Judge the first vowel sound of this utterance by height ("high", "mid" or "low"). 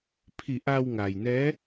high